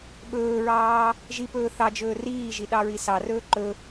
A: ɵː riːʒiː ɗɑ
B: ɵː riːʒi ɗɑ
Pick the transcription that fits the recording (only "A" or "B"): B